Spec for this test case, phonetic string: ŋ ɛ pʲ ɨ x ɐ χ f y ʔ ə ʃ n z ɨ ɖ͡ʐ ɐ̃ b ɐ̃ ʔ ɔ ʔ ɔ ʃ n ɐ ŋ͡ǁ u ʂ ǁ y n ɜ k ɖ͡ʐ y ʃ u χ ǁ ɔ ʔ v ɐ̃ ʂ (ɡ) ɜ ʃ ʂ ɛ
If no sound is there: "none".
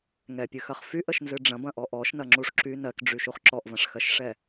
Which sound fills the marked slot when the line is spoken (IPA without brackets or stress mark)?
x